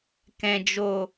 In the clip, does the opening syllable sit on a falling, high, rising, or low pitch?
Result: low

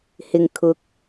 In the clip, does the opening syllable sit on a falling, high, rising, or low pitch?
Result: low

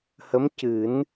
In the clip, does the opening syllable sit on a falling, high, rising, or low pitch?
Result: rising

